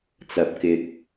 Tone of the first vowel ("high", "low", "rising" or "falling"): low